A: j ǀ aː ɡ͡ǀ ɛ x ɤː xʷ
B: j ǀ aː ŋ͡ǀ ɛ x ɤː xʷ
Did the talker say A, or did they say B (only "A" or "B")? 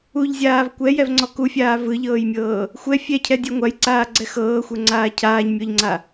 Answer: A